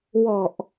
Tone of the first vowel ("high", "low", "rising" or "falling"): low